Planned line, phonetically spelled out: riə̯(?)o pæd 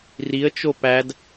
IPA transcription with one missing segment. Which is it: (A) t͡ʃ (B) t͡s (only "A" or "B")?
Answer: A